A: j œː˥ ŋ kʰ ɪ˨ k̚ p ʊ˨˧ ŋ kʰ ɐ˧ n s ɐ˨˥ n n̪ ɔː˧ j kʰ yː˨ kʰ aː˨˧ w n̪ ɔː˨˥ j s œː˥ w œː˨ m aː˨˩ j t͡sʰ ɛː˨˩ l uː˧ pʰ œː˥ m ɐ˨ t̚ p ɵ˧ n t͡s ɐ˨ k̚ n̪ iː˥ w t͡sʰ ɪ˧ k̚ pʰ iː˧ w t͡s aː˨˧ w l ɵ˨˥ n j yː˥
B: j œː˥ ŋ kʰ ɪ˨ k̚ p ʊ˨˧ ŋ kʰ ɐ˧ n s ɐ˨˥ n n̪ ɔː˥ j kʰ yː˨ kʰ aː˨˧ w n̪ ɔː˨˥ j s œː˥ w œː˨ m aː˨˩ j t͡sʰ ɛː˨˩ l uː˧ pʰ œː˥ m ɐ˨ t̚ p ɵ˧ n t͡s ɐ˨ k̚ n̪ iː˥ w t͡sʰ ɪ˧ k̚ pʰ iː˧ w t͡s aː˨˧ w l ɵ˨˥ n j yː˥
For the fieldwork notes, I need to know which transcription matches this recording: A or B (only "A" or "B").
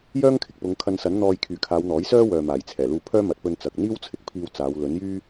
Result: A